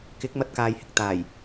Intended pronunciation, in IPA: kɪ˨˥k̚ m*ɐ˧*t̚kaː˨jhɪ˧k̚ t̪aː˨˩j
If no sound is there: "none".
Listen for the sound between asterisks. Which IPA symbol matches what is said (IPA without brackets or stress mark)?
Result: ɐ˧